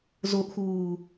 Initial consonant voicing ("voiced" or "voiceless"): voiced